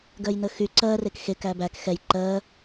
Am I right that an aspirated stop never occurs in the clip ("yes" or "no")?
yes